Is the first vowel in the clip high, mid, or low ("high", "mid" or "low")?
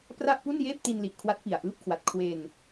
low